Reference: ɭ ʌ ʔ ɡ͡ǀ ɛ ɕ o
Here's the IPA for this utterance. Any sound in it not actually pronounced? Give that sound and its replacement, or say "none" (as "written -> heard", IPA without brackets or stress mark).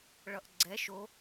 ɕ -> ʃ